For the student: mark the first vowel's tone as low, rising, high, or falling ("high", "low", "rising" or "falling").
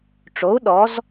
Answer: rising